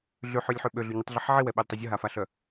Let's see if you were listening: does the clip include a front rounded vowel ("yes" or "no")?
yes